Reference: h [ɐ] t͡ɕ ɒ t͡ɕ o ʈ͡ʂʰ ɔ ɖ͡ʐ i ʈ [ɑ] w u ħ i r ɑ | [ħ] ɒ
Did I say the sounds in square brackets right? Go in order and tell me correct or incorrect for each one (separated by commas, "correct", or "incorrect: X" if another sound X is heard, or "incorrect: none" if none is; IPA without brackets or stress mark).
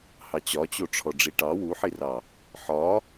incorrect: ɑ, correct, correct